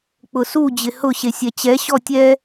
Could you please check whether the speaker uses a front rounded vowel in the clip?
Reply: no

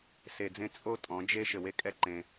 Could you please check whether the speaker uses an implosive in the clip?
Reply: no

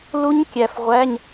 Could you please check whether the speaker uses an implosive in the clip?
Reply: no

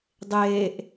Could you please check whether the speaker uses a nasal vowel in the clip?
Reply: no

